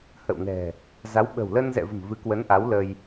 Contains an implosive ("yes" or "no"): yes